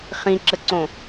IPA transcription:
χ ĩ ǁ ə ǀ õ

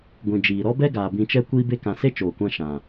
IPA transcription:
ɡʷ ĩ˨ d͡ʒ iː˨ ɾ ɔ˦ b ɛ˦ ɡ aː˨ b ĩ˧ t͡ʃ ɛ˦ kʷ iː˦ b e˦ k ã˧ s e˦ t͡ʃ oː˨ kʷ ã˧ ʃ ã˨

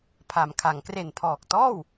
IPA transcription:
pʰ a˩˦ m kʰ a˩˦ ŋ k r e˨˩ n pʰ ɔː˨˩ k̚ t ɔː˥˩ w

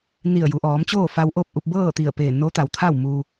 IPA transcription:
n i˧˩ ə̯ j u˩˧ ʔ ɔː˩˧ m t͡ɕ oː˥˨ f a˧ w ʔ o˥˨ p̚ ʔ u˧ p̚ b ɤː˥˨ t̪ i˧˩ ə̯ p eː˧˩ n o˧˥ t̪ a˩ w t̪ʰ a˥˨ w m u˧

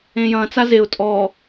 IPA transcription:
ẽ j ɐ̃ t͡s a z e ʊ̯ tʼ ɔ

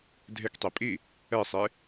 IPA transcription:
dʱ e k tˤ e pʼ i | ɛ sˤ e

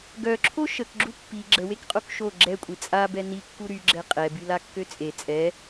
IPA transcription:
ɡ œ ǁʰ o ʃ ə k ɡ͡ǁ u pː i ɡ͡ǁ ə w e k qʼ o k ʃ o ɡ͡ǁ ɛ kʷʼ i t͡sʼ a b ɛ n i kː u ɾ y ɡ͡ǁ ɛ qʼ ɛ b y l a kː ø t͡sʼ e t͡sʼ ɛ

